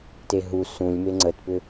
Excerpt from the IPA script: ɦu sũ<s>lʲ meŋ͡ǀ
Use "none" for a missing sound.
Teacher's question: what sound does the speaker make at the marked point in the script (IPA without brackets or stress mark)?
none